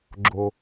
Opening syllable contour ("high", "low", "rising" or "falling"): high